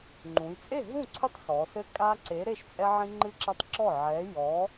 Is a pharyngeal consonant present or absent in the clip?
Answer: present